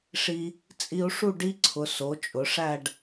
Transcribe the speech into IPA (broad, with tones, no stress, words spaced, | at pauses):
ʂi˧ | t͡sʼi˧u̯ʂu˥˧ ɖi˥ǀʰʊ˩˧ so˩˧t͡ʃʼʊ˩˧ʂæ˥˧ɖ